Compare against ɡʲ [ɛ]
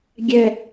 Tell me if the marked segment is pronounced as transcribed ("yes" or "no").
yes